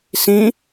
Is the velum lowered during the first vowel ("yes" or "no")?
yes